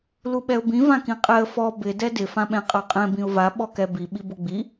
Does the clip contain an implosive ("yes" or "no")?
yes